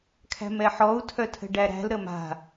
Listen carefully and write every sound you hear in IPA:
kʰæ̤mɛħɔu̯ tʰœtʰə̤ɖæɾæ̤l ɾəma̤

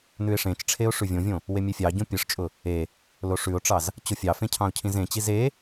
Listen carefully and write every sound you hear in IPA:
nʉɪ̯ʂẽt͡ʃʈ͡ʂʰeʊ̯ ʂʉvʲõvʲõ | wemʲefʲɑɟõ pʲɯʂt͡ʃʼʊ | e | loʂʉʊ̯ʈ͡ʂɑz | t͡ɕʊfʲɑfẽ cʰɑ̃ʊ̯cʰĩzẽt͡ɕi ze

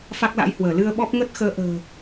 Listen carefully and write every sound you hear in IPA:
fa˦˥k̚la̰˧˥jhwəː˧˩ lɨ˧ə̯ɓɔ˦˥p̚ ŋə˦˥t̚xəː˨˦ʔə̤ː˨˩

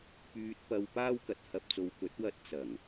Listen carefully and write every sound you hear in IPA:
pyː˧t̚pɐ˧w paː˥wkɐ˨˥t̚hɐ˧p̚t͡so˧w kɵ˨˥t̚wɐ˧t̚ t͡sɐ˨˩ŋ

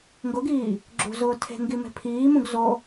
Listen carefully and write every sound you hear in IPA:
ŋɡʊɡiː | ɡ͡ǁṳzʊː tʰe̤ŋɡi me̤pʰiːmũɡ zo

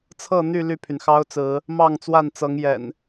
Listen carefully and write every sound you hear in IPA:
t͡sʰɤ˥˨n̪y˥˨ ly˥˨pʰy˩n xɑ˦ʊ̯t͡sɹ̩˨˦ | mɑ˥˨ŋt͡swa˥˨nt͡sɤ˨˦ŋ jɛ̰˨˩n

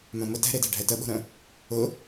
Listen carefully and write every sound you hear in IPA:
mœ̃mʊ tɛ̤ɾedɛ̤ ɖʱɛtəɓo̤ɾœ̃ | ʊ

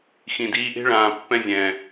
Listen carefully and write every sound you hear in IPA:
xĩ˨diː˧ʔe̤˦ ɭãː˨pːɛ̃˦zʲɛ̃ː˨

